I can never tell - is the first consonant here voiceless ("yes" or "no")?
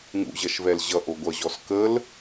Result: no